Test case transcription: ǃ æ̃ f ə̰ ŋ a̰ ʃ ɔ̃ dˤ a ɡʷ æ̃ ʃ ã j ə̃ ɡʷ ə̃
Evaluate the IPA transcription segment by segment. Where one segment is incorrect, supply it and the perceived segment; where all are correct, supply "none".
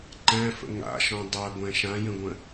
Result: none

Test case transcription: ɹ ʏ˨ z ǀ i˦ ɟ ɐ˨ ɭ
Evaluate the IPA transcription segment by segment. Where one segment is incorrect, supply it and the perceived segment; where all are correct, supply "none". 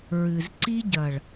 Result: ʏ˨ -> ɨ˨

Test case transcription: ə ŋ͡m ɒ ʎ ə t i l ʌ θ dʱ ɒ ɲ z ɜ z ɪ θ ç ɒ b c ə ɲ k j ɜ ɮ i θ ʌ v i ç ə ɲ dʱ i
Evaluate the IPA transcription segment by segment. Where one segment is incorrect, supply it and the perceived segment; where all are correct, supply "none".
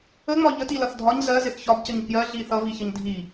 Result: none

